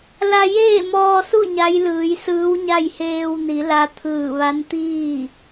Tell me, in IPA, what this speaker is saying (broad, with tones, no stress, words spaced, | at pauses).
la˧jeː˥˨mɔː˧su˥˨ ɲa˧˥jlɯː˩˧jsɯː˧˥wɲa˥˨j heː˧wni˩˧ la˧t̪ʰɯː˧˩ʋa˧˥n t̪iː˥˨